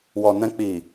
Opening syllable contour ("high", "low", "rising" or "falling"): low